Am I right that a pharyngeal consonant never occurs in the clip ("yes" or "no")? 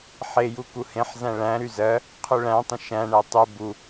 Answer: no